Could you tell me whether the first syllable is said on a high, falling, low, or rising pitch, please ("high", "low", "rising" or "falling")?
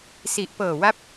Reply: low